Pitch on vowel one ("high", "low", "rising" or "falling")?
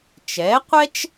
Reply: rising